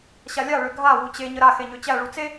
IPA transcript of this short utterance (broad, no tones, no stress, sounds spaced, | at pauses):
ɕ a lʲ a ɭ ø ɡʱ a w u t͡ɕ e ɲ ə ɾ a x e ɲ ø t͡ɕ æ ɭ u t͡s e